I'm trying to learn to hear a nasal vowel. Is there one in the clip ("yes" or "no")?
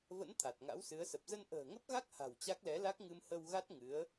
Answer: no